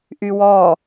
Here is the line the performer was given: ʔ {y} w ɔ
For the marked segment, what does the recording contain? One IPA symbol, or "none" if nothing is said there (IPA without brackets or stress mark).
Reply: y